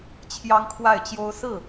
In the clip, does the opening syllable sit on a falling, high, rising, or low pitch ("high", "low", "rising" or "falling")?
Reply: high